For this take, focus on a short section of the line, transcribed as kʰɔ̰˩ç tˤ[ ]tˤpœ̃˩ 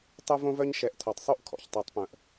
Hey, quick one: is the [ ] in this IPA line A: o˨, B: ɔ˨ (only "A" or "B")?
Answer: A